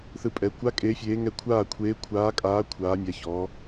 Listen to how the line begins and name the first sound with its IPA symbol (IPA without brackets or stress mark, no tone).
θ